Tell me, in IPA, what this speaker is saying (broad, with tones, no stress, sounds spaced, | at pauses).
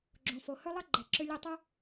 ɡ͡ǁ õ˩ f o˩ h ɵ˥ lˠ ʌ˥ ɡ͡ǃ ɛ˩ ǁ ʏ˧ lʲ ʌ˧ tˤ o˥